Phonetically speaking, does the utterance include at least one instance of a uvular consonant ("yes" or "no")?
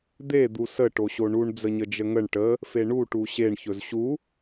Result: no